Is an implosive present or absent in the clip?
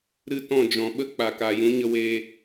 present